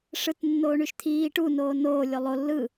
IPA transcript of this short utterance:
ʂ ɯ t nː oː ɳ y ʃ t̪ʰ iː ʈ u n oː n oː lʲ o lˠ o lː ɯ

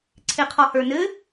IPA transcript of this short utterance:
ǀʰ e qʰ ɔ h ə˞ n ɘ

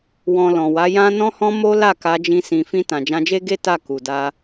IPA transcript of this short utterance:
w ɔ̃˨ l ɔ̃˨ w a˨˦ j ã˦ n ɔ̃˦ h ɔ̃˦ m o˦ l a˦˨ k a˧ d͡ʒ ĩ˧ s ĩ˨ f ĩ˧ t ã˨ d͡ʒ ã˧ d͡ʒ e˦ ɡ e˦ t a˦˨ k u˨ d a˧

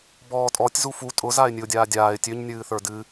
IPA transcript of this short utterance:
b ɔː tʼ ɔ tʲ z u f u tʼ ʊ z a ɪ̯ nʲ ɨ ʊ̯ dʲ aː dʲ aː ɪ̯ tʲ ø ɲ nʲ ɨː θ ə˞ d ɨ

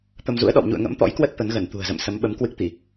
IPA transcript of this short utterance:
t̪ ə˧ m z ṵ˧˥ ə̯ ɗ ɔ̰˧˨ w ɲ ṵ˧˨ ə̯ ŋ ə̰˧˥ m t̪ ɔ̰˧˥ j k w ə˦˥ t̚ t̪ ə˨˦ n ɣ ə˧˩ n t̪ ṳ˨˩ ə̯ z ə̰˧˨ m s ə˨˦ m ɓ ə˨˦ m k w ɨ˦˥ k̚ t̪ i˧˩˨

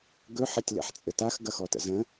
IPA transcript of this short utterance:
ɡ ɵ ħ ɐ tʲ l ɛ̰ ħ t͡sʼ ɘ t a x ɡ ɐ x ɔ t ə̰ z ə̃

